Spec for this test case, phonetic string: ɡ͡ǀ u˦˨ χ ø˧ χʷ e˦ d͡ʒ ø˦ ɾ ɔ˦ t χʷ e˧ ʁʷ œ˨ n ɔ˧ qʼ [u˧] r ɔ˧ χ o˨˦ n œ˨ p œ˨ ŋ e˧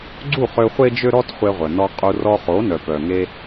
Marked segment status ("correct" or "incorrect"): correct